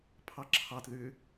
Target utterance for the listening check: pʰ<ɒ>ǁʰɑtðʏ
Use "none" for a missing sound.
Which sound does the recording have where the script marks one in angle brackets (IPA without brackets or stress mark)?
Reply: ɑ